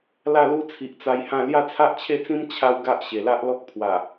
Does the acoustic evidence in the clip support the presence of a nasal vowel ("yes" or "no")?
yes